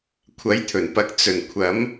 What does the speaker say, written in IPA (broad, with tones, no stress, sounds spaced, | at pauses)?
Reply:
kʷʰ ɐ˨˥ j t̪ʰ ɵ˨˩ n p ɐ˨˥ k̚ t͡s ɵ˨˩ n kʷʰ ɐ˨˥ m